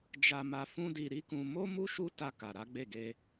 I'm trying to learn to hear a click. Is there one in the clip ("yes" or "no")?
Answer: no